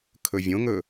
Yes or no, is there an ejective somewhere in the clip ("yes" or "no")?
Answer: no